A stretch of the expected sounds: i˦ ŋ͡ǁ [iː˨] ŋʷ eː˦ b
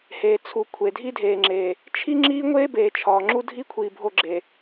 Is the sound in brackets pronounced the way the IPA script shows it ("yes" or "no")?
no